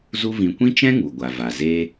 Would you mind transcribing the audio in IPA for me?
z u˦ v ĩ˧ kʷ ĩ˦ t͡ʃ ɛ̃˦ ŋ u˨ ɡʷ a˨ v a˨ z eː˦

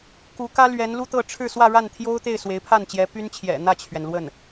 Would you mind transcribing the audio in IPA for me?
k u˧˥ k ä˥ l ɥ ɛ˧˥ n l u˥ t̪ ɤ˥˧ ʈ͡ʂʰ ɻ̩˥˧ s w ä˥˧ ɻ a˥˩ n t̪ʰ j o˥ ʊ̯ t̪ e˥˩ ɪ̯ s w e˧˥ ɪ̯ pʰ a˥˩ n t͡ɕ j ɛ˧˥ p y˥ n t͡ɕʰ j ɛ̰˨˩ n̪ ä˥˩ t͡ɕʰ ɥ ɛ˩ n l w ə˥˩ n

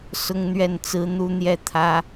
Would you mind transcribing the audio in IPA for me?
s ʊ˥ ŋ n̪ ɥ ɛ˥˩ n t͡s ɹ̩˥ n̪ u˥ n̪ j ɛ˥˩ t̪ʰ ä˥

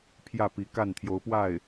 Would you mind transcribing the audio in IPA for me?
pʰ j ä˥˩ p i˧˥ k a˥˩ n t̪ʰ j o˧˥ ʊ̯ p w a˥˩ ɪ̯

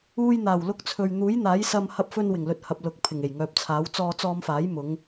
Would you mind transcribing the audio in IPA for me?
uː˧ j n̪ aː˨˩ w l ʊ˧ k̚ t͡sʰ ɵ˨ ɥ n̪ uː˨˥ j n̪ aː˨˥ j s ɐ˧ m h ɐ˧ p̚ f ɵ˧ n w ɪ˨˩ ŋ l ɵ˨ t̚ h ɐ˨ p̚ l ʊ˨ k̚ pʰ ɪ˨˩ ŋ e˨˩ j ŋ œː˨ p̚ t͡sʰ aː˨˥ w t͡s ɔː˧ t͡s ɔː˧ m f aː˨˥ j m ʊ˨˧ ŋ

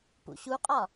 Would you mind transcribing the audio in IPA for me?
p ṵ ɕ u qʼ ɒ

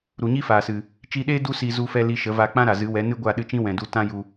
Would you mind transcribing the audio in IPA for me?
ɾ u˨ ɲ i˦ f aː˨ s ɨ˨ | t͡ʃ i˧ ɗ eː˦ d u˦ s i˧ z u˧ f ɛ˧ l i˧ ʃ ə˨˦ v a˧ k͡p ã˦ ɾ a˨ z ɨ˨˦ w ɛ˨˦ n ɨ˦ ɡʷ a˦˨ ɗ ɨ˧ t͡ʃ ĩ˦ w ɛ̃˨ d u˧ t ã˦ j u˧

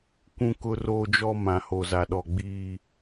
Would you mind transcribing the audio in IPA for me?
kʷ ũ˦ k ʊ˦ r oː˦ d͡ʒ ɔ˦ m ã˨ h o˨ z a˨ ɗ ɔ˨ ɡ͡b iː˦

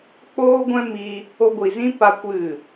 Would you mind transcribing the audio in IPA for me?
k͡p oː˦ ɡʷ ɛ̃˦ m i˧ | o˧ ɡʷ i˨ z ĩ˦ p a˦ kʷ ɨ˦˨

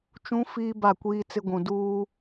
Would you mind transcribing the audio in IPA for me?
t͡ʃ ũ˦ f iː˦ b a˦˨ kʷ iː˦ t͡s ɪ˦ ɡʷ ũ˨ d uː˦

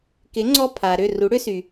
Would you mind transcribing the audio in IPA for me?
k ɪ˩˥ ŋ͡ǀ ɔ˧ pʰ a˩ ɾ ʏ˥˩ r u˩˥ ɽ ʏ˥ s y˩

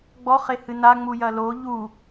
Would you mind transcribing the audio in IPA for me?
ɡ͡b ɔ χ e h ɨ n a ŋ͡m u j ɐ l o ʎ u

